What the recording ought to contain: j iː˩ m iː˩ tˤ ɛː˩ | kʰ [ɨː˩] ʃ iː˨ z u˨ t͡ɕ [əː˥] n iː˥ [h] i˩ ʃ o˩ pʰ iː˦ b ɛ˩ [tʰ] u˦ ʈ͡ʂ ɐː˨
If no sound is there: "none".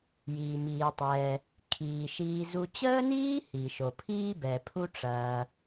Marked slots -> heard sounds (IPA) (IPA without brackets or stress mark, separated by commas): iː˩, əː˥, h, pʰ